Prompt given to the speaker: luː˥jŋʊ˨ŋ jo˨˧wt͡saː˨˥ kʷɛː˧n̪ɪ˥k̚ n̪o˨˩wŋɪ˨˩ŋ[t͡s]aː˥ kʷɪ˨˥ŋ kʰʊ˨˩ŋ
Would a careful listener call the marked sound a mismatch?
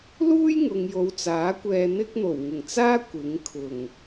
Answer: no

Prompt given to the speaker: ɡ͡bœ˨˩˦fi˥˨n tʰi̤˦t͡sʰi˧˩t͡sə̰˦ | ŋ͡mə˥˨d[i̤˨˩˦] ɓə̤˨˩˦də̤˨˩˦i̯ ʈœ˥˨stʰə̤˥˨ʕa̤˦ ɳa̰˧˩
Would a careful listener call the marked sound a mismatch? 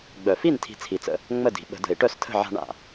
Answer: no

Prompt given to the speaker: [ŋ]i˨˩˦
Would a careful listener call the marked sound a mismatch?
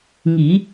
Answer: no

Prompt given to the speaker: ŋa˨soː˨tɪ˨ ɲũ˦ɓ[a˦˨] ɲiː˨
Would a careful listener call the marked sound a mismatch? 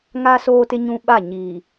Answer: no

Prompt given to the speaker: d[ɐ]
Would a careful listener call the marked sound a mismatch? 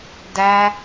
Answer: yes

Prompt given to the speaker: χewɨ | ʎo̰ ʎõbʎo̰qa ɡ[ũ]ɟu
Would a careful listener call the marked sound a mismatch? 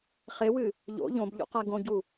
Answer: yes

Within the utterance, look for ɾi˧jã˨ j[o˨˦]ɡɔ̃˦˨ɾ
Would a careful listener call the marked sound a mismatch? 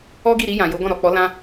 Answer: no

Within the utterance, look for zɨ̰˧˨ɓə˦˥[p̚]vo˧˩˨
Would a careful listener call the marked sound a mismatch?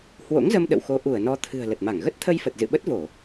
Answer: yes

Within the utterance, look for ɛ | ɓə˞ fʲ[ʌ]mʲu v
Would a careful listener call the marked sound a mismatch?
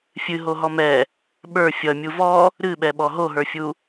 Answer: no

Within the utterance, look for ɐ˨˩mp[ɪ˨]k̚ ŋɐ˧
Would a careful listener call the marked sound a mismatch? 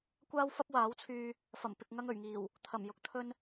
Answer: no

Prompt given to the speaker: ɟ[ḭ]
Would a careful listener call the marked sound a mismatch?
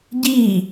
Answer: yes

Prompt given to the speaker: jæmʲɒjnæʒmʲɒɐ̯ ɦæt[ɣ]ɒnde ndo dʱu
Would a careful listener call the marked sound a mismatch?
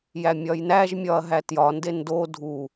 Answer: yes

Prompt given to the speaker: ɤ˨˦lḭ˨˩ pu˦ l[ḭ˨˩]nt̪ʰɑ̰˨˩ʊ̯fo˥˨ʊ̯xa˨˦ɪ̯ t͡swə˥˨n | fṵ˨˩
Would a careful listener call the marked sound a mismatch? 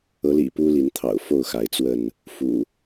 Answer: yes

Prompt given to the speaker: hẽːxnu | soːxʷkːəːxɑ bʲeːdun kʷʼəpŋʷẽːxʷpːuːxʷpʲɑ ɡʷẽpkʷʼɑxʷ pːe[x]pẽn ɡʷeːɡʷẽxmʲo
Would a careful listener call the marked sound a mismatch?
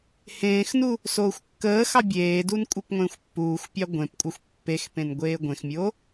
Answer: no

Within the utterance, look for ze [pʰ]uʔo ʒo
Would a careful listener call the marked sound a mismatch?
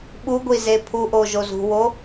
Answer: no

